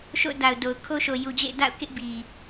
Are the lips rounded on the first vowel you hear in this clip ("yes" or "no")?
yes